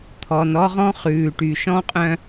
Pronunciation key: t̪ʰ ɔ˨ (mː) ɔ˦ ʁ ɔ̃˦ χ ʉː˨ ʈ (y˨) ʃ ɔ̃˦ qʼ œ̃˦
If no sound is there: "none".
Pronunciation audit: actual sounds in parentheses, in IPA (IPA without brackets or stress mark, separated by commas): n, y˨